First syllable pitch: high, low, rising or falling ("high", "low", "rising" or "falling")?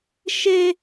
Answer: high